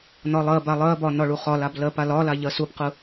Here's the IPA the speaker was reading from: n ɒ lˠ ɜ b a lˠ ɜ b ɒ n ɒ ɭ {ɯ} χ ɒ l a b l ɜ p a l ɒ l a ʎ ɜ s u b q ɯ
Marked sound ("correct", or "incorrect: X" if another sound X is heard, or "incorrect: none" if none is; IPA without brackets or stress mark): incorrect: u